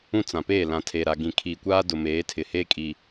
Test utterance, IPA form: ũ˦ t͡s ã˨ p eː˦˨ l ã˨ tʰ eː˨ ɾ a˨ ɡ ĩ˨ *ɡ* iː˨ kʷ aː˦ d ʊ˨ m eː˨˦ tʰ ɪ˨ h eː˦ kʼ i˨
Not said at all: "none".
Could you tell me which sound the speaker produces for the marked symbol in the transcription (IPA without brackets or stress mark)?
kʰ